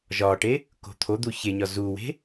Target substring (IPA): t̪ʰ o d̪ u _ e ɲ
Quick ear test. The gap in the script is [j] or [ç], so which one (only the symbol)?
ç